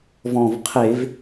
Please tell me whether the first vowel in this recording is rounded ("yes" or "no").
yes